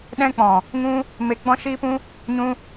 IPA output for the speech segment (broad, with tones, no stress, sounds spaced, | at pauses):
ɗ ɛ̃˧ k͡p ɔ̃˨ | ŋ ũ˦ | m e˧ ɡ͡b ɔ̃˦ ʃ iː˦ p ũ˦ | ɲ ũ˦